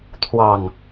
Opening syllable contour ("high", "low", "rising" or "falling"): low